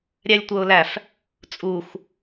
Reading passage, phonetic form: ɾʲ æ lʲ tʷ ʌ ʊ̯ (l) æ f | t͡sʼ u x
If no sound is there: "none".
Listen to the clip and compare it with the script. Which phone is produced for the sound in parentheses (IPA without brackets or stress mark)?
l